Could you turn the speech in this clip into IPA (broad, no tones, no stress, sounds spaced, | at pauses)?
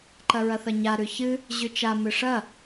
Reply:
ǃ ɐ ɹ ɐ θ ɐ ɲ a ɾ ʉ ç ɨ | ʑ ʉ t͡ʃ a m ɨ ʂ ɐ